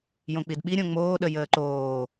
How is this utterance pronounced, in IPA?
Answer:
j õ k͡p i d ɓ i ɾʲ õ ŋ͡m oː ɗ ə j əː ǃ oː

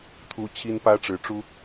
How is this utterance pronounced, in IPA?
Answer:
t̪ʰ u˥ t͡ɕʰ i˥ n p ä˥ ʈ͡ʂ ɻ̩˧˥ ʈ͡ʂ u˥

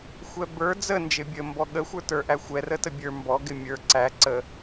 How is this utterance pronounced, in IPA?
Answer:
xʷ ɛ b ə˞ d͡z ə n d͡ʒ ɪ bʲ ə m b ɔ ɠ ə xʷ ə˞ t ə˞ ʔ æ xʷ ɛ r ə t ə bʲ ə˞ m b ɔ ɡ ɪ mʲ ə˞ ǀ æ ǀ ə

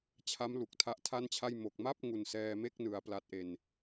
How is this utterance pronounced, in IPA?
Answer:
t͡ɕʰ a˦˥ m l u˨˩ k̚ tʰ a˦˥ ʔ tʰ a˥˩ n t͡ɕʰ a˥˩ j m o˨˩ k̚ m a˥˩ p̚ ŋ u˨˩ n s ɛː˧ m e˥˩ k̚ n ɯ˩˦ a̯ p l a˨˩ t̚ ʔ e˨˩ n

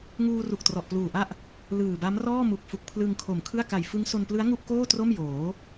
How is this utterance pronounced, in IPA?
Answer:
ŋ uː˧ r u˨˩ k̚ t r ɔ˨˩ ʔ p l uː˨˩ ʔ a˥˩ ʔ | l ɯː˨˩ b a˦˥ m r ɔː˥˩ m u˨˩ k̚ f u˨˩ k̚ pʰ l ɯ˧ ŋ kʰ o˨˩ m kʰ ɯ˥˩ a̯ k a˨˩ j f ɯ˦˥ ŋ s o˧ n p l ɯ˦˥ a̯ ŋ u˥˩ ʔ k oː˥˩ t r o˥˩ m j oː˩˦

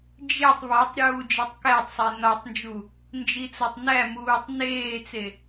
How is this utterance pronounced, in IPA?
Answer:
d͡ʒ e tˤ β ɒ tˤ ɾʲ uː d͡ʒ e tˤ k æ tˤ sˤ e n ɒ tˤ n d͡ʒ u | n d͡ʒ i t͡s o tˤ n æ m uː tˤ n eː t͡s e

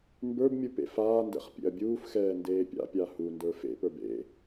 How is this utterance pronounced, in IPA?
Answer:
m b ə˞ b mʲ u p ḛ f aː n d ɛ̰ χ pʲ ḛ ɐ̯ bʲ uː f x ɛː n d eː pʲ a̰ pʲ a h u n d ə˞ f ḛ p ə˞ b ḛ

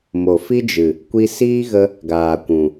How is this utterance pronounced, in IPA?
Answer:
m o˨ f i˦ d͡ʒ ɨ˨ | kʷ i˧ s iː˦ ɣ ə˧ | ɡ aː˨ kʷ ũ˨

